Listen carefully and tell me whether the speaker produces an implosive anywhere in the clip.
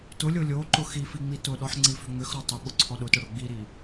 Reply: yes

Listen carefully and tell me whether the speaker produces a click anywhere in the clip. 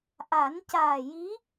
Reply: no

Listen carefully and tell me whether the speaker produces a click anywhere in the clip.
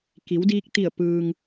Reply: no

